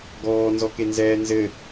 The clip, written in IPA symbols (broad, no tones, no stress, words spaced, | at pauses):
ɡɔːnzɔkenzɛː nzɘ